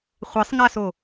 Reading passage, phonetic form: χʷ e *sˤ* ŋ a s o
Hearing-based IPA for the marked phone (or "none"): sˤ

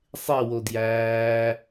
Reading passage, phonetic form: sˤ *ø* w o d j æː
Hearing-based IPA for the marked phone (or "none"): e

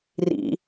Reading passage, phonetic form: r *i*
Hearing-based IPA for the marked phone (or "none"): ḭ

